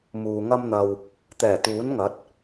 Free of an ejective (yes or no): yes